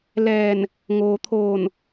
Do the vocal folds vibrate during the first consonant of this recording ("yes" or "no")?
yes